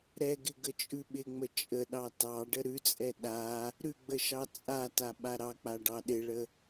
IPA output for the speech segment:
ɾ ɛ ɡ ɪ ɡ ə t͡ʃʼ ʉ ɓ ɪ ŋ͡m ə t͡ʃʼ ə ɗ ɑ t ɑ ɖ ə ɾ ʉ t͡sʼ ɛ ɗ a | ɾ ʉ ɡ͡b ə ʃ ɑ t͡sʼ a t a ɓ a ɾ ɑ k͡p a ɖ ɑ ɗ ɪ ɭ ə

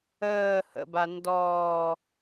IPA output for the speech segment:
əː h ə̰ b a n d ɔː

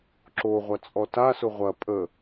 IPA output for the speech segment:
ǁ o ʁʷ ɐ t͡sʼ ɔ t a s ʊ ʁʷ ɐ pʼ ə

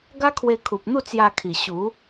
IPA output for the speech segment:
ɡ a˦ kʰ w e˧ kʰ u˨ p̚ n̪ u˥˧ t͡s j a˧ kʰ i˨˩ ɕ u˨˦

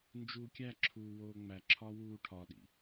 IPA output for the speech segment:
n d͡ʒ uː kʲ æ ǁʰ uː w oː ŋ͡m æ ǁʰ ɒ w uː ʈʰ ɒ ɗ ḭ

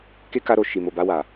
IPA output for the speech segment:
k e˦ k a˧ ɾ o˨ ʃ i˨ m o˨ b a˧ w a˨

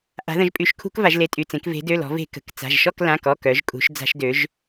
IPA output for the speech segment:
ʔ a̤˩˧ ð ə̃˩˧ ʒ pʼ y˩˧˩ ʃ kʰ ṳ˧˩˧ k v a˩˧ ʒ l e˩˧˩ tʼ y˩˧˩ t͡s ẽ˩˧ k v e̤˩˧ d ø˩˧˩ l ɔ̤˩˧ v e̤˧˩˧ k ə̤˩˧˩ k t͡s a̤˩˧˩ ʒ ʃ ɔ˥˨ k l ã˩˧˩ k ɔ˩˧˩ k œ˩˧ ʒ kʼ ṳ˩˧ ʃ d͡z a̤˧˩˧ ʃ d ø˩˧ ʒ

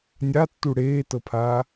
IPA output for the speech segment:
nʲ a tː u ɽ eː t ɤ pʰ aː

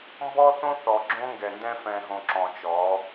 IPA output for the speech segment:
m b ɔ˦ θ õ˦ θ ɔ˨ ɡ͡ǁ õ˦ ŋ ɡ ɛ˨ n d ɛ̃˦ f ɛ̃˨ ɦ õ˨ ǁ ɔ̃˨ t͡ʃ ɔ˨˦

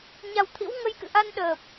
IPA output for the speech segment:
ɲ a˨˩ w t̪ʰ ḭ˧˥ w ŋ ə˧ j k ɨ̰˧˨ ʔ a˧ n ɗ əː˨˩ p̚

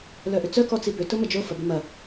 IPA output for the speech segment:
l œ ʔ ʏ t͡s œ k ɔ t͡s i b ʏ t ʊ m ə d͡ʒ o f ɐ b ɪ m ɐ

